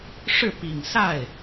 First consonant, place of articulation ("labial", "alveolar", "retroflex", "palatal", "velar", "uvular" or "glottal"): retroflex